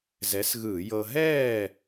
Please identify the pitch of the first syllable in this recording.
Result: rising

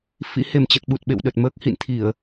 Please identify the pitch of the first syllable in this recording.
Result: rising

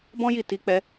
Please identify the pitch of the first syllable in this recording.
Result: high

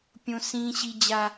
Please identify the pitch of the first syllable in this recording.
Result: high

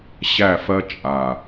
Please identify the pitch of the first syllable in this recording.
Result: falling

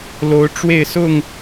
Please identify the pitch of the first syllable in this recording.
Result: rising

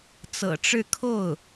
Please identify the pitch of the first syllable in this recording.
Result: low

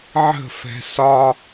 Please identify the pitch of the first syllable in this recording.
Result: falling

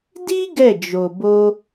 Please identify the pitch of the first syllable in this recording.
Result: high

